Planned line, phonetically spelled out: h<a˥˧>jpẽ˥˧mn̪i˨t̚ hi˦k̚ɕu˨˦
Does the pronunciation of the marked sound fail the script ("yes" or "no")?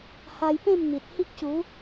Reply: yes